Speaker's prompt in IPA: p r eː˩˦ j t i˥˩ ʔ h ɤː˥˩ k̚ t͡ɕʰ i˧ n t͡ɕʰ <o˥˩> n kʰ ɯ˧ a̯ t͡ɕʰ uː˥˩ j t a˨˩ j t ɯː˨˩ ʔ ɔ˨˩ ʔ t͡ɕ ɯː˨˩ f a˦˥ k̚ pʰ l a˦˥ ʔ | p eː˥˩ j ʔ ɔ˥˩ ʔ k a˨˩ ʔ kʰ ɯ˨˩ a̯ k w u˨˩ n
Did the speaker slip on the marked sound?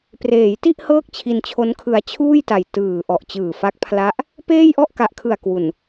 yes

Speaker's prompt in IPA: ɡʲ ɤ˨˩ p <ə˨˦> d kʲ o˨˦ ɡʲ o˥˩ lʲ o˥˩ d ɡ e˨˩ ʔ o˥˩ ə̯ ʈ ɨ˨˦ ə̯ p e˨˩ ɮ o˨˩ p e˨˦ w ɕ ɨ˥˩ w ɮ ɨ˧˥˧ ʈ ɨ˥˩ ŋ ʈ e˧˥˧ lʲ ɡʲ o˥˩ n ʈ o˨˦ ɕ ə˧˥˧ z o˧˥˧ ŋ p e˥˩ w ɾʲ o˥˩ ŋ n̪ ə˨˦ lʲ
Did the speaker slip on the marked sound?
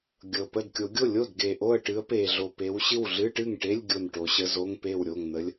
yes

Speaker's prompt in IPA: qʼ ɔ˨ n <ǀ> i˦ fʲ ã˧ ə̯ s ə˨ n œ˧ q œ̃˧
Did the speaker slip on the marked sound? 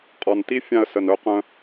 yes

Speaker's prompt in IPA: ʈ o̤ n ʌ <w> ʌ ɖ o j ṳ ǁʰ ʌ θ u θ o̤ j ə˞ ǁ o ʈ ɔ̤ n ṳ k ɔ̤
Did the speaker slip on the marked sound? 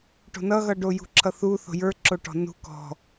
yes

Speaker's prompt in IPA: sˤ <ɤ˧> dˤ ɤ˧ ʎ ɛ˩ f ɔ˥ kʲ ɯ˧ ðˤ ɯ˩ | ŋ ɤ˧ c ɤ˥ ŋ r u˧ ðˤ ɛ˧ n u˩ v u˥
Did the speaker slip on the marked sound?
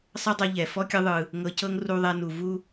yes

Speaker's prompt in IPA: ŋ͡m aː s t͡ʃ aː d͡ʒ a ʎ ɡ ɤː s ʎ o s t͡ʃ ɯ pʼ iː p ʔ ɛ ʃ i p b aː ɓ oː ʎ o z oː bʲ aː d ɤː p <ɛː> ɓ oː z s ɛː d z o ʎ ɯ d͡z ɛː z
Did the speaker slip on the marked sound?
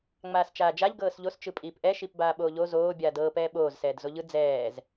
no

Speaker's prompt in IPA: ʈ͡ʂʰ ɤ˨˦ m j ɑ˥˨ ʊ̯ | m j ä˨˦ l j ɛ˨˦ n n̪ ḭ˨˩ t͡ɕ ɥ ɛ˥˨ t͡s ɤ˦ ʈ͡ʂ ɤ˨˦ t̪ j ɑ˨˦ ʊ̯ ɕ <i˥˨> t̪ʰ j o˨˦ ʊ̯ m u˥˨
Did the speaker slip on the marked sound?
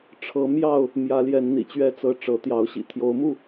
yes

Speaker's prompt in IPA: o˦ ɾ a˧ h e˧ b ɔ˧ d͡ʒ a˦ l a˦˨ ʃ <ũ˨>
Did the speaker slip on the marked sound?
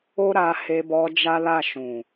no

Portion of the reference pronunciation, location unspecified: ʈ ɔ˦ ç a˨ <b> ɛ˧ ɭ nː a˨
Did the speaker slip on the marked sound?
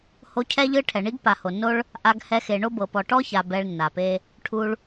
no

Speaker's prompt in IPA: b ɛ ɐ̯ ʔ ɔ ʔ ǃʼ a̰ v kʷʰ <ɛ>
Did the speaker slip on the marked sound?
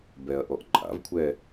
no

